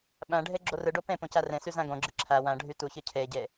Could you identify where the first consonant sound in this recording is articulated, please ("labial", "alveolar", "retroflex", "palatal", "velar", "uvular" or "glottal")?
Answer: labial